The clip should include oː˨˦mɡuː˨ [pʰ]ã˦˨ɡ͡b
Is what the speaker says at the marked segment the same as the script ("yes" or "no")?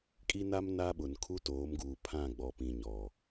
yes